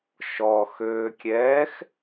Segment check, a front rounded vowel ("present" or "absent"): present